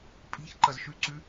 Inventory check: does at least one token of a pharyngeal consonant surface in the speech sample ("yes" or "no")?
no